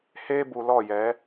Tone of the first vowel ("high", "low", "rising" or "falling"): high